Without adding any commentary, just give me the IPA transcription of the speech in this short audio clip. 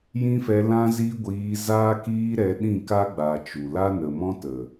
j ĩ˦ f ɛ˧ l ã˦ z i˦ ɡʷ iː˧ z aː˦ k iː˦ ɾ ɛ˧ ɗ ĩ˦˨ k a˦ ɡ͡b a˨ t͡ʃ u˨ l a˦ n ə˨ m ɔ̃˦ t ə˨

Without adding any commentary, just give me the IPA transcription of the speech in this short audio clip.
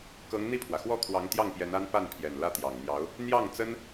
k ɤ˧˥ ŋ n̪ i˥˩ pʰ w ä˩ x w ɔ˥˩ kʰ w ɑ˧˥ ŋ t̪ j ɑ˥˩ ŋ p j ɛ˧˥ n a˥ n p a˥˩ n pʰ j ɛ˨˩ n l ä˥˩ t̪ j ɑ˨˩ ŋ n̪ j ɑ˧˥ ʊ̯ | n̪ j ɑ˥˩ ŋ t͡s ə˥ n

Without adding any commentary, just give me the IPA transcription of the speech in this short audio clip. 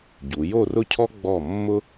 ɟ u˩˧ j o˥˧ r ʊ˥˧ cʰ ɔ˥ ɡ͡b ɔ˧˩ mː ʊ˥

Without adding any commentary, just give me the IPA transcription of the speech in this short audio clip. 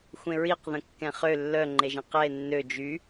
xʷ ẽ ɹ i q ð ə̃ kː ɛ̃ χ ø lː œ ŋ͡ǃ e ʒ ẽ q ɛ e̯ nː ø d͡ʒ y

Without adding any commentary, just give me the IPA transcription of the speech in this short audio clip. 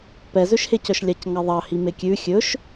p ɛ z ø ʃ h e c œ ʃ lʲ ɑ c ŋ ɑ ðˤ ɑ h i m e kʲ ʉ xʲ ɵ ʃ

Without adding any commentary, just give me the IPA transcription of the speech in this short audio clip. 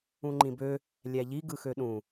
ũ ŋ͡ǃ ĩ b ø | lʲ æ ʎ i ɡ ɯ x ø ɗ ũ

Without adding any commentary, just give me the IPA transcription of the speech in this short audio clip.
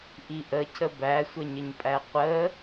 ʔ i ʔ ə cʰ ə b æ sʷ ə ɲ ə ɲ pʼ æ qʷ ə

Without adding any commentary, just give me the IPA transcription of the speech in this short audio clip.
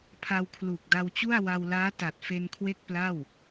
pʰ a˧ w kʰ l uː˨˩ k̚ d a˧ w t͡ɕ u˥˩ a̯ w a˧ w l aː˦˥ t a˨˩ t̚ f e˧ n kʰ w e˥˩ k̚ p l a˥˩ w

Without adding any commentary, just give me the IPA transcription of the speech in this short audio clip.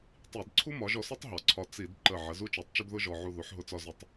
tˤ i˧˩˧ d ǀʰ u˥ m ɒ˩˥ ʒ ɔ˧ s ɒ˥ tˤ ɦ ɒ˩˥ ǀʰ ɒ˧ t͡s i˧˩˧ d ǃ ə˧˩ ʕ ə˩˥ z u˥ t͡ʃ ɒ˩˥ tˤ t͡ʃ ʊ˥ d ð ʊ˥ ʒ ɔ˧ ʕ u˥˨ ð u˩˥ ħ ɦ ʊ˧ t͡s ɒ˥˨ z ʊ˥˨ tˤ

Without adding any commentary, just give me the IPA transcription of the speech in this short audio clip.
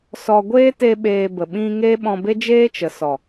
s ɔ˧ ɡʷ eː˦ t e˧ ɓ eː˧ b ə˨ ɓ ĩ˧ ŋ e˦ ɓ ɔ̃˧ b e˦ d͡ʒ eː˦ t͡ʃ ə˨ s ɔ˨

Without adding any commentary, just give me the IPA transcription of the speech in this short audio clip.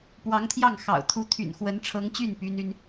p w ɑ˧˥ ŋ t̪ʰ j ɑ˥˩ ŋ x ɑ̰˨˩ ʊ̯ t̪ʰ u˧˥ t̪ʰ y̰˨˩ n x w ə˧˥ n ʈ͡ʂʰ ɤ˧˥ ŋ t͡ɕ y˥˩ n p y˥ n y˥ n

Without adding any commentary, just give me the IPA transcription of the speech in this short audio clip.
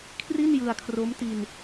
kʰ r i˥˩ n j ɯ˧ a̯ kʰ r o˦˥ m t i˧ n

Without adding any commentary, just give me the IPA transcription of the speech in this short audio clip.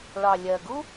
ɭ ɑ˨ lʲ ɜ˨ ɡ u˦

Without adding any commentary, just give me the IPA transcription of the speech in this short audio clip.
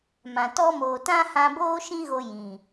m ã˨ t ɔ˦ m oː˨ t ã˦ h ã˧ b oː˦ ʃ ĩ˦ ɣ o˧ j ĩ˨

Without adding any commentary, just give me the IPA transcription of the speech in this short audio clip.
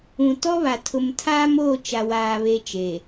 ũ˨ t ɔ˦ β a˨ tʰ ʊ˨ m tʰ aː˦ m oː˦˨ t͡ʃ a˨ w aː˨ β e˨ t͡ʃ eː˨

